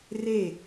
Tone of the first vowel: falling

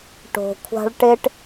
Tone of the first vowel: low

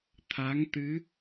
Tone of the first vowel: rising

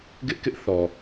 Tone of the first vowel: high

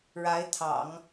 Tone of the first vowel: rising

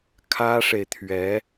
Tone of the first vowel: high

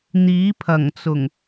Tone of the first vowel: rising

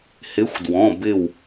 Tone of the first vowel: rising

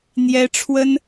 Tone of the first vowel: high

